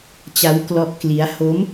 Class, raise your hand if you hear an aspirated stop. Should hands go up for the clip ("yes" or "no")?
no